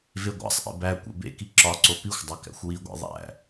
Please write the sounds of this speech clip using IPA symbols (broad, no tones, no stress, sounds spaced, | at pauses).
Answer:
v e ɡʷ æ̰ sˤ ʔ ḛ b æ kʷ ḛ b ḛ k i ǁ ɒ ǀ o p i xʷ dˤ o k æ̰ xʷ w i ɡʷ ḛ ðˤ æ̰